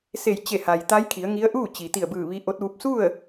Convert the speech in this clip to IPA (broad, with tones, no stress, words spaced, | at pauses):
se˧˩jt͡ɕe˧˩ha˩j t̪a˧˥jkʰi˩˧ə̯ŋi˧˥ə̯ ʔuː˥˨t͡ɕi˩t̪i˧˩ə̯bɯː˧˩ ʋi˧˥ʔo˧˥t̚ʋu˧˥p̚ su˥˨ə̯